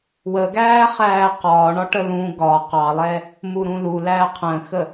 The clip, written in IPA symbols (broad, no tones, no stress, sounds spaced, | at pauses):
w ə ɡ æː χ æː q ɒː ɳ ɒ ʈ ə l ũ ɡ ɒ q ɑ lˠ ɛ | m u ɾ ũ l u l æː qʰ ə̃ː x ə